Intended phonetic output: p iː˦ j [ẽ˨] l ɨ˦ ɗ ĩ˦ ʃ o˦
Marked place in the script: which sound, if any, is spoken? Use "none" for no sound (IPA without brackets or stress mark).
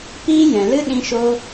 ɛ̃˨